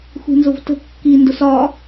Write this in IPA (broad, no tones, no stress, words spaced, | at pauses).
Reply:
xʷi̤nzʊvtə̤ kːi ndʊsɒ